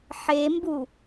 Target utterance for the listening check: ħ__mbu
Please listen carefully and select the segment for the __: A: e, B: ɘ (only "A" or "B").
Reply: A